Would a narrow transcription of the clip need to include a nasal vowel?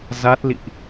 no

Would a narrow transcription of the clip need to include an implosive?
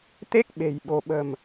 yes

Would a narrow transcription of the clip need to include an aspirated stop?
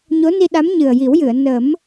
no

